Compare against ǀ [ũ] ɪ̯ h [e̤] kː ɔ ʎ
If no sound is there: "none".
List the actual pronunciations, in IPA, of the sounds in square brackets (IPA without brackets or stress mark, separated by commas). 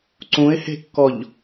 ũ, e̤